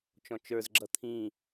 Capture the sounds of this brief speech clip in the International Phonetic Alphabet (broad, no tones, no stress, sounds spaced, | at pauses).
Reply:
t͡ʃ ɔ̃ t͡ʃ ə˞ z ɡ͡ǁ ʌ t̪ʰ ĩ